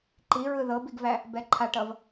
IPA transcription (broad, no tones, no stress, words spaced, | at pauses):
ǃiɹɯ ðɤbiɡvæ | bɛǃʰaʈʌv